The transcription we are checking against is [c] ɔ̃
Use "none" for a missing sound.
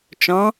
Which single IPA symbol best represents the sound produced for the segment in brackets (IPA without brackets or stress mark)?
t͡ʃ